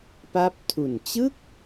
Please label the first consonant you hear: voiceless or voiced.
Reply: voiceless